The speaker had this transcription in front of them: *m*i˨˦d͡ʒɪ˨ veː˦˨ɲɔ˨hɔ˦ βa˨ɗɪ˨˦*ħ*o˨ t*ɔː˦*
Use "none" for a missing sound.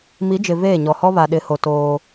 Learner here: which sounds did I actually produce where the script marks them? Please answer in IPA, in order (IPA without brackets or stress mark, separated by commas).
m, h, oː˦